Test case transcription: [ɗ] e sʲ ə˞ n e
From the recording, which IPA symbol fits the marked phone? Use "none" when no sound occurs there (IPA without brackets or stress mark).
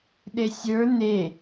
ɗ